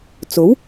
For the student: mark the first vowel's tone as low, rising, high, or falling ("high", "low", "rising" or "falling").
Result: rising